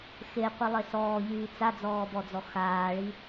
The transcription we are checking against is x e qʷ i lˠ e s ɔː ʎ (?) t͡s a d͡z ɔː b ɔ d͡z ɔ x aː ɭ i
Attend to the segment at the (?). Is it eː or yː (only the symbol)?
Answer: yː